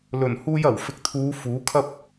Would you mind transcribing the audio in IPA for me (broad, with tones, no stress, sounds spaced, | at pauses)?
l ɵ˨˩ n h uː˧ j ɐ˨˩ w f ɪ˨˥ k̚ t̪ʰ uː˨˧ f uː˨˥ kʰ ɐ˥ p̚